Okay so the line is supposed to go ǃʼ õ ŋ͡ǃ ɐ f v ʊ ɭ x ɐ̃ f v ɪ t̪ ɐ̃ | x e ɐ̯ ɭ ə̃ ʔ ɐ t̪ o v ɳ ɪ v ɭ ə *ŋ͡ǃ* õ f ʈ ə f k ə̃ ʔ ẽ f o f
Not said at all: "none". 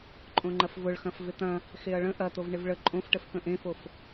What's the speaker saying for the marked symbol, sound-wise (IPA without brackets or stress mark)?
ǃʼ